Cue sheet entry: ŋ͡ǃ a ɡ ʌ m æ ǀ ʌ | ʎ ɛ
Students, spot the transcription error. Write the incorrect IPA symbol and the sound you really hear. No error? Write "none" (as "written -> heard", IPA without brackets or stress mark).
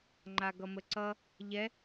æ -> ə